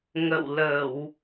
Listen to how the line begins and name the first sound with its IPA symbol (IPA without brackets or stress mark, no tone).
ŋ